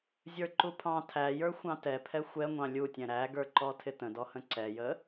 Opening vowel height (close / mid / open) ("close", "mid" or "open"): mid